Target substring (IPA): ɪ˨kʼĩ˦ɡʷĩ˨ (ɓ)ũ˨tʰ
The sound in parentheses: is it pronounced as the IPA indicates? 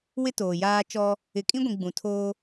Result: no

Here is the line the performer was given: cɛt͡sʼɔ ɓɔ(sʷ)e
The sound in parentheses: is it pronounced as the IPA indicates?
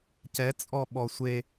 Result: yes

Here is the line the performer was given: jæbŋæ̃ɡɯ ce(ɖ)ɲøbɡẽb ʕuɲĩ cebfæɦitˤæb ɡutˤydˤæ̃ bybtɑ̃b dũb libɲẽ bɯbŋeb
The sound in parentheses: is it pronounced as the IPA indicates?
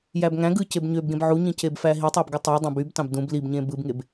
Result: no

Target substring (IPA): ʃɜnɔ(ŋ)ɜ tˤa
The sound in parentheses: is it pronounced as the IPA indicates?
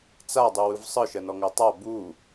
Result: yes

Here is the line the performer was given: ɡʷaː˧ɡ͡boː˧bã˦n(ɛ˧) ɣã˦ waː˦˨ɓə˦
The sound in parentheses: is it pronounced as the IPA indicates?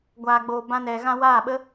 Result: yes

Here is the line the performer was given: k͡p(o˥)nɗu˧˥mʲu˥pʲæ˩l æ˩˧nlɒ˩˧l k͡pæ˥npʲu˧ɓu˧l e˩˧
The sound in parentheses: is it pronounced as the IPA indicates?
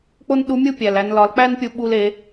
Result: yes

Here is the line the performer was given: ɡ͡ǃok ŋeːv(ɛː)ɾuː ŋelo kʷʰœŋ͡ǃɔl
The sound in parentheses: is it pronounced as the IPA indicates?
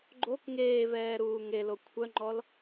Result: yes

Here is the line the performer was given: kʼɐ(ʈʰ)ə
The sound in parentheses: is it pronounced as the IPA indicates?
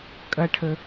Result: yes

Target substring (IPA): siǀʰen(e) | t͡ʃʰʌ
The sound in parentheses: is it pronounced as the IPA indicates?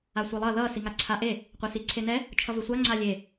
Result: no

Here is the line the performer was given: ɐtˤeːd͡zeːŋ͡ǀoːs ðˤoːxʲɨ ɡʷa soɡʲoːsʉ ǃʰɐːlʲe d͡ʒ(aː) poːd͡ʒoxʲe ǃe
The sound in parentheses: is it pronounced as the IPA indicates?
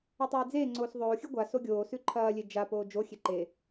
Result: no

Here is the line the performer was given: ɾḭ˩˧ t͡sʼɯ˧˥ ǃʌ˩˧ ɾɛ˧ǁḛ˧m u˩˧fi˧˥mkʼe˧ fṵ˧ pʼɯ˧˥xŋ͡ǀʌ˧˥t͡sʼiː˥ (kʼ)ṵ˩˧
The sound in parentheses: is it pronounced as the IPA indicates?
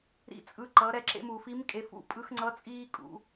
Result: yes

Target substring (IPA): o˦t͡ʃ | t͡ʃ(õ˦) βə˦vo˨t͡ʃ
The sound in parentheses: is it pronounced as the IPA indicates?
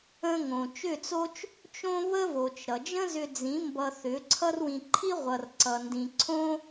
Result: yes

